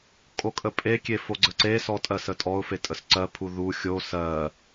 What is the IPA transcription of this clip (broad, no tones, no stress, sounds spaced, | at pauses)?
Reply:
kʼ o kʼ ə pʼ e kʲ e f o ɡ͡ǀ ə ǀ e s ɔ tʼ ɜ s ə tʼ ɔ ʊ̯ f e tʼ ə s ǀ ɜ pʰ u ð u xʲ o s ɜ